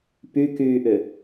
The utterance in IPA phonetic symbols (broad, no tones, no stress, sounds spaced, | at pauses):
p y k yː ʔ ʏ